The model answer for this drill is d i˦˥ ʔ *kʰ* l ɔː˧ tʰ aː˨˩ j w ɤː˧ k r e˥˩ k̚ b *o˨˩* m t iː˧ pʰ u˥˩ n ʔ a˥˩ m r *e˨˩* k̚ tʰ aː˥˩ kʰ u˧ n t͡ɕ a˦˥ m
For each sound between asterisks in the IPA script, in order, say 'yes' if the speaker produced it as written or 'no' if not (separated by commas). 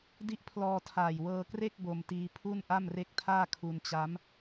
no, no, no